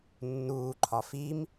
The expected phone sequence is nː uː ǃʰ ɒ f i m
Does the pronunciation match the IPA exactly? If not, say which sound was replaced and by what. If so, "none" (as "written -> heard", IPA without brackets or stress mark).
none